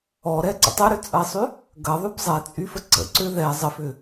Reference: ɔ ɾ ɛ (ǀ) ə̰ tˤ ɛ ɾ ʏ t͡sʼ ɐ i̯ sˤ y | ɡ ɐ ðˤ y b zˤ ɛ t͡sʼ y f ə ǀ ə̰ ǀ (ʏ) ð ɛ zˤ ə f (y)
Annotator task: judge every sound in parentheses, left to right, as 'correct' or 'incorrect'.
correct, correct, incorrect: ʏ

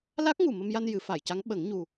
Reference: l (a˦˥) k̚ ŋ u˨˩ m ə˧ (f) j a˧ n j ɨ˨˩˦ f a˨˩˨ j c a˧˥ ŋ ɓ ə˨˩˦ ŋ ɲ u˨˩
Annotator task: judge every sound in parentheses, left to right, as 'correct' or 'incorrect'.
correct, incorrect: m

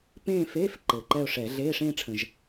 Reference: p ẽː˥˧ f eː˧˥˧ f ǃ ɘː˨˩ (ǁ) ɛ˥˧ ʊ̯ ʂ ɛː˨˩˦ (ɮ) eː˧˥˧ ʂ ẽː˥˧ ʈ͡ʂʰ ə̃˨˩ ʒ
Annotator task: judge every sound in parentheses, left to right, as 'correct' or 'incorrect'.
incorrect: ǃ, correct

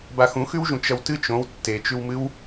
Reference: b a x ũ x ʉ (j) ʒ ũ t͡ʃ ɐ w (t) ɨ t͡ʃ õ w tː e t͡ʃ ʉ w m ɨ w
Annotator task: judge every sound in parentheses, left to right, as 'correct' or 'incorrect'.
incorrect: w, correct

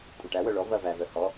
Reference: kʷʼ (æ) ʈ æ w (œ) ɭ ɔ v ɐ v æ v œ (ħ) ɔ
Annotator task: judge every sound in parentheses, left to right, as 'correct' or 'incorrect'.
incorrect: ɐ, correct, incorrect: h

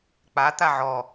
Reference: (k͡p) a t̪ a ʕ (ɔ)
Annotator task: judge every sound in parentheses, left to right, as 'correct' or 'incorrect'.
correct, correct

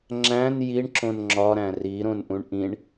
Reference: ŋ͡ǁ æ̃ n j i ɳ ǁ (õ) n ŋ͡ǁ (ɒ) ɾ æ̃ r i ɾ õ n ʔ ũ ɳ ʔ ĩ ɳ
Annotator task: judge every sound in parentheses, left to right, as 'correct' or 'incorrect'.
correct, correct

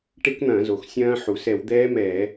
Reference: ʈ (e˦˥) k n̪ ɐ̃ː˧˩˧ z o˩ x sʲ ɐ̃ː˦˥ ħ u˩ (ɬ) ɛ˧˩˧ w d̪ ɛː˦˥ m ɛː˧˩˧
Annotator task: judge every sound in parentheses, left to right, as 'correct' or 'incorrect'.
correct, incorrect: s

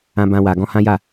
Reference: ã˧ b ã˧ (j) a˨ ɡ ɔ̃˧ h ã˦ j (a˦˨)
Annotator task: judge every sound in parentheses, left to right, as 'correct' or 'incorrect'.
incorrect: w, correct

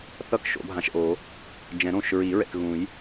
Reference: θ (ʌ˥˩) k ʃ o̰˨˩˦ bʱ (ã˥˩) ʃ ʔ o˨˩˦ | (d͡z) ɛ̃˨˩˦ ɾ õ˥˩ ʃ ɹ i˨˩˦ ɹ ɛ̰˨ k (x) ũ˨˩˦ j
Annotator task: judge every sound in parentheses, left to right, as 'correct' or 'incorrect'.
correct, incorrect: ã˨, incorrect: d͡ʒ, incorrect: ɣ

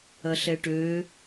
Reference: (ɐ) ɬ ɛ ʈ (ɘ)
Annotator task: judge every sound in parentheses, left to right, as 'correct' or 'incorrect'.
correct, incorrect: ø

